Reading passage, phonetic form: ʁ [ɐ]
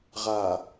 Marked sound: incorrect: a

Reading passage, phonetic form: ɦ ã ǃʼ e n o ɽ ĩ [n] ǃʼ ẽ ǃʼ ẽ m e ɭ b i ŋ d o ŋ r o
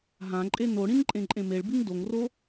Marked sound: correct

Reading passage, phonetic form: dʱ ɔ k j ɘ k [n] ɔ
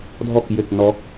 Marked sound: correct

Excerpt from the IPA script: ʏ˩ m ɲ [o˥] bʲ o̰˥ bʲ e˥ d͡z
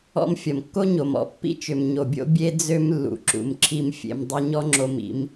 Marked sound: incorrect: o˩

